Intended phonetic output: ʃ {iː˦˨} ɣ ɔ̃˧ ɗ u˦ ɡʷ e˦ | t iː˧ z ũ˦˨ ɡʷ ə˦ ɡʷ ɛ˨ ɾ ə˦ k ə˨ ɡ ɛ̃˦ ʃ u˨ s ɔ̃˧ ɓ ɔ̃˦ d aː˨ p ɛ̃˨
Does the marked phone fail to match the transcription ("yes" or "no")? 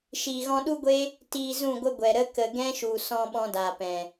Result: yes